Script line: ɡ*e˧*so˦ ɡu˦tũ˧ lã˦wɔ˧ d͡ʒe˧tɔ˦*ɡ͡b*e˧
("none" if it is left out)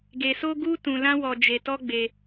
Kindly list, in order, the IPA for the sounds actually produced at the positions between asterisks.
e˧, ɡ͡b

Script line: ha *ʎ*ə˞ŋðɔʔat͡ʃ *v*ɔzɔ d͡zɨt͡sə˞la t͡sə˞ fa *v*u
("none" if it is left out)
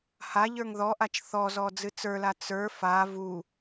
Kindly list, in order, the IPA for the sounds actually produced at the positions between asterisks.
ʎ, θ, v

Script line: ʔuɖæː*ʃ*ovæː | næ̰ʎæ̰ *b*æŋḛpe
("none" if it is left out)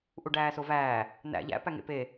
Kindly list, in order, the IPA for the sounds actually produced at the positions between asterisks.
s, p

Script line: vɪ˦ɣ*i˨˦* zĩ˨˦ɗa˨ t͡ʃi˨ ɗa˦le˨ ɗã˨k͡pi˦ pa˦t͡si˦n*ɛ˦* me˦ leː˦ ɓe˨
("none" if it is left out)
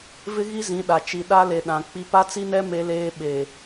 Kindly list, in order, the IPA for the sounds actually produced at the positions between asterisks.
i˦, ɛ˦

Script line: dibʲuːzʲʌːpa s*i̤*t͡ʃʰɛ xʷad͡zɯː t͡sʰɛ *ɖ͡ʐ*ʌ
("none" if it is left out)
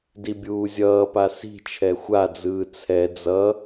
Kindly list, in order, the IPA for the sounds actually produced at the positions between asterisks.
i̤, d͡z

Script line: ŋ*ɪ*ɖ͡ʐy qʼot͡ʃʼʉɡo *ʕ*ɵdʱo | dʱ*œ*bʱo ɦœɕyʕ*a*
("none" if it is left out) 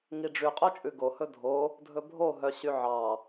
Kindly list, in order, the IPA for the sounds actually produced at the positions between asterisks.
i, h, ɵ, ɑ

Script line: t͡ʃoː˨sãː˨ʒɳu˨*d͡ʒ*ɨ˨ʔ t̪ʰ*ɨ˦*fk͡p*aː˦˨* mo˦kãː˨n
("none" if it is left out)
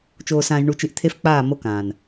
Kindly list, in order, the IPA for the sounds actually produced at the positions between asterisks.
t͡ʃ, e˦, aː˦˨

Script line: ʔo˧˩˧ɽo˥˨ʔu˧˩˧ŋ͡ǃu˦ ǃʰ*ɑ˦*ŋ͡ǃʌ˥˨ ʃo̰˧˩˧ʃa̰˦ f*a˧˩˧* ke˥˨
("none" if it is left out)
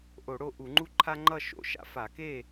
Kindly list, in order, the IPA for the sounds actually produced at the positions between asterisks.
a˦, a˧˩˧

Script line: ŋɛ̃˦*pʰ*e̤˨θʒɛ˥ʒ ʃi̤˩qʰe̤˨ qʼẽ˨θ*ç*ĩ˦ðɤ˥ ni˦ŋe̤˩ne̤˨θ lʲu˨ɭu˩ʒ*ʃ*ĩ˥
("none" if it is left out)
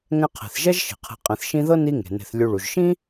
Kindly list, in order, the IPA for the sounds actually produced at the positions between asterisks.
qʰ, ʃ, ʃ

